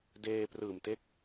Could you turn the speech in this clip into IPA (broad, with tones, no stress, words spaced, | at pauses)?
deː˧prɯː˨˩mte˦˥k̚